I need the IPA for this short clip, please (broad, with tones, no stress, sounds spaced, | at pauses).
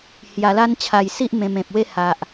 h j a˧ l a˦ n t͡ɕʰ a˧ j s i˦ ʔ m ẽ˧ m ẽ˨ p̚ w e˦ h a˨ ʔ